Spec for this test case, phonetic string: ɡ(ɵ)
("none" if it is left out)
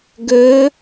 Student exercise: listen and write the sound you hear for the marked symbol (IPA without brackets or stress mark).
ɵ